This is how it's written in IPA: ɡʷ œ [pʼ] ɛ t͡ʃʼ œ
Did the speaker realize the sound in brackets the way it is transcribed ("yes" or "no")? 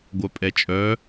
yes